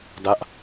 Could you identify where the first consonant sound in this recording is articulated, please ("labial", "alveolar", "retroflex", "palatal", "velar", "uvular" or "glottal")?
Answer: alveolar